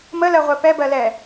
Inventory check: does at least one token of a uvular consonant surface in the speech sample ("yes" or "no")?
yes